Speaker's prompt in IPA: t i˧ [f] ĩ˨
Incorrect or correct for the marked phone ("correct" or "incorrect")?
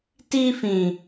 correct